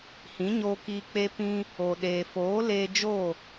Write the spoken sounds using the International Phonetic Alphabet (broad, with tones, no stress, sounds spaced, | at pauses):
h ĩ˨˦ ɲ oː˧ k iː˧ k͡p e˧ p ĩ˧ | o˨ ɗ eː˨ f oː˨˦ l eː˧ d͡ʒ o˦˨